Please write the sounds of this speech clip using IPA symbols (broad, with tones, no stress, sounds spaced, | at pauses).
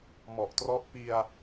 m ɔ˨˩ ʔ t r ɔ˦˥ ʔ p i˧ a̯